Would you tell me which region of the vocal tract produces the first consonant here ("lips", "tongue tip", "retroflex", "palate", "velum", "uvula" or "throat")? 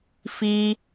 lips